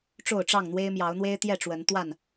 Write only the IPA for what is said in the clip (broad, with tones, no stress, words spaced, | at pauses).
ʈ͡ʂo˥˨ʊ̯ʈ͡ʂɑ˥˨ŋn̪we˦ɪ̯ mjɑ˨˦ʊ̯n̪we˦ɪ̯t̪jɛ˥˨ʈ͡ʂwə˨˦n t̪wa˥˨n